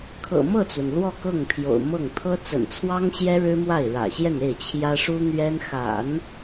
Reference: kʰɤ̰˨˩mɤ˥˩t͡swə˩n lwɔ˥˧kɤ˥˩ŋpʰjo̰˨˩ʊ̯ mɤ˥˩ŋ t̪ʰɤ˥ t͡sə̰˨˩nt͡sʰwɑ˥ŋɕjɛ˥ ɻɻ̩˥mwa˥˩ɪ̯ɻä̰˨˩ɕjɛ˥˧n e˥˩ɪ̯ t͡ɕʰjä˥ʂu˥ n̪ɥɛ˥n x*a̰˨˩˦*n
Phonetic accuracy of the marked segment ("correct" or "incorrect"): correct